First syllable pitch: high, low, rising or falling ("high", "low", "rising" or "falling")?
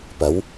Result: rising